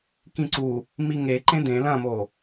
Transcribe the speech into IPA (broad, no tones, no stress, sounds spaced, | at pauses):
k ĩ ǀ u | m i ŋ e ǃ ẽ d ẽ l ɐ̃ m o